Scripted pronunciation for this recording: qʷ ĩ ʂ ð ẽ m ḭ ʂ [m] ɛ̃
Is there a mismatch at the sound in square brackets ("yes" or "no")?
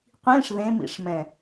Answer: no